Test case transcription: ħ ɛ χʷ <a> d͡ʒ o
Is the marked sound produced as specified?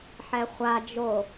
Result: yes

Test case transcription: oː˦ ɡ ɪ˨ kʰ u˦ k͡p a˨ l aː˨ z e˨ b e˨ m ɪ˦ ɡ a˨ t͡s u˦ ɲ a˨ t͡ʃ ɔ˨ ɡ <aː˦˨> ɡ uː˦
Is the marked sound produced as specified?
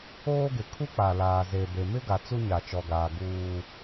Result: no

